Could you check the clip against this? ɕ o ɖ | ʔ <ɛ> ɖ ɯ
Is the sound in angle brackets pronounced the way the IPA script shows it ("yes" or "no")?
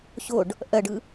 no